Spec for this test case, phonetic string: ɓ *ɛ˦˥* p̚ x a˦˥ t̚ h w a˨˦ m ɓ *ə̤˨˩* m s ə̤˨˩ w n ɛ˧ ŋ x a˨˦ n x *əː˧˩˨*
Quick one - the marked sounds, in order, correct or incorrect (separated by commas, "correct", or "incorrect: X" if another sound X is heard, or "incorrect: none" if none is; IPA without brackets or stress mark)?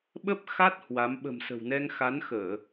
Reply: incorrect: ə˦˥, correct, correct